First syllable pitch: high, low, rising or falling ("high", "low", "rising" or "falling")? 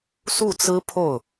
falling